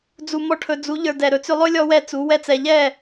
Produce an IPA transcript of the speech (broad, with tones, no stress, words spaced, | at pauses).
d͡zu˨ mɔ˦ʈʰɵ˧ d͡zu˨˦ ʎə˞˧ dɛ˨ɾɵ˧t͡sʏ˦ lˠɵ˦ lʲɔ˦wɛ˦t͡su˨˦ wɛ˦t͡sɛ˧ ʎɛ˦˨